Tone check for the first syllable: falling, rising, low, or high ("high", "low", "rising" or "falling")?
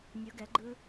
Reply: rising